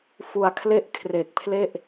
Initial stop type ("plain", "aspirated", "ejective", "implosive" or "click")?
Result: aspirated